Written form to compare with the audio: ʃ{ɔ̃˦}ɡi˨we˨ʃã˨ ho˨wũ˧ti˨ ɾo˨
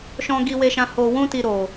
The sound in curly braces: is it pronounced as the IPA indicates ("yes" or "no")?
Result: no